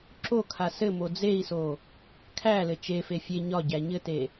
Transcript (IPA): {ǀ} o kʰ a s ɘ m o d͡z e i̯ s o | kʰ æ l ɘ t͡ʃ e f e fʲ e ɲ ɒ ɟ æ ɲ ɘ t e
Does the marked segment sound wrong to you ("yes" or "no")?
yes